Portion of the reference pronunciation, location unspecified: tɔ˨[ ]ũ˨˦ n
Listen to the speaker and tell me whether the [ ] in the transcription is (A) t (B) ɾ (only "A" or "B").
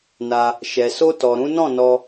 B